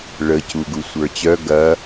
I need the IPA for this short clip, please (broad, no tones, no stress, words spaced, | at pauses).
ɭə cuɡusʷə˞t͡ɕœ ɡɐ